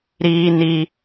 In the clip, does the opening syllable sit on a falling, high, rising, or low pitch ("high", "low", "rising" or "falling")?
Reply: high